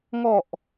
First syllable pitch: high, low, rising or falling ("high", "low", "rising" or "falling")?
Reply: low